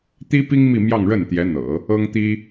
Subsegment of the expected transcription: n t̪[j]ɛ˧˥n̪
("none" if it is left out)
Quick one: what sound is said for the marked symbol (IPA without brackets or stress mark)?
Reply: j